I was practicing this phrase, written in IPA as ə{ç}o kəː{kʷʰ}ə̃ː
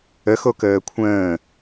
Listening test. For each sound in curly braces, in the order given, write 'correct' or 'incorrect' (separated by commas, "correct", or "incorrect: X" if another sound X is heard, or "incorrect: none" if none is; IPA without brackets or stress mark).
incorrect: x, correct